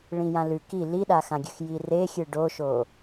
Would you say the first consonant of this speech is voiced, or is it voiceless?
voiced